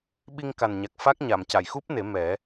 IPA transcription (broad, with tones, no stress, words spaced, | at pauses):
ɓi˧ŋka˨˩nɲa˨˩k̚ fa˦˥k̚ɲa˨˩˨mca˨˩˨j xu˦˥p̚ne˨˩˦ mɛ˨˩˦